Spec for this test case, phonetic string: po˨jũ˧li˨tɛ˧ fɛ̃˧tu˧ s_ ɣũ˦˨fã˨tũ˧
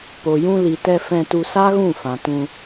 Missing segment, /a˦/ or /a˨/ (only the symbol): a˦